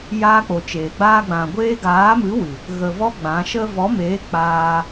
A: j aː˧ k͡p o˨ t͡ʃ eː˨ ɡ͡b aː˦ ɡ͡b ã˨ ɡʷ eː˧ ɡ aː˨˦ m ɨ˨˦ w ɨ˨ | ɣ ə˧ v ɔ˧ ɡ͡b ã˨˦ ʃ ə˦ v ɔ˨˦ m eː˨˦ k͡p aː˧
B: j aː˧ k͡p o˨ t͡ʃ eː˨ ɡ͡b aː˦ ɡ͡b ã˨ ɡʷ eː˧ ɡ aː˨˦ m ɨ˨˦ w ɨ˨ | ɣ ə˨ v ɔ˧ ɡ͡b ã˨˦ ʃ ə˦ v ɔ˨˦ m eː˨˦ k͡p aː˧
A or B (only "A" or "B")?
B